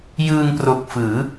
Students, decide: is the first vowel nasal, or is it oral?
oral